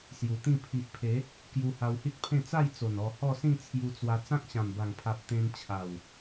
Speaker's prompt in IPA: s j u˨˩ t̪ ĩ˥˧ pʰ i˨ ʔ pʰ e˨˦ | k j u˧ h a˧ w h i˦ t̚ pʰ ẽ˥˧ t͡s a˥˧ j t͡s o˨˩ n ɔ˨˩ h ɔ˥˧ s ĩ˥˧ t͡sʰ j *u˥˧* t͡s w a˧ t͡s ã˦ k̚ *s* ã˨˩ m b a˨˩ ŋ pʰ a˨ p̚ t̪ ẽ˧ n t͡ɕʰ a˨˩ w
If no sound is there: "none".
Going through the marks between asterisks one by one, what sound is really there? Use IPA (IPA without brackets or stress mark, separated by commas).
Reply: u˧, ɕ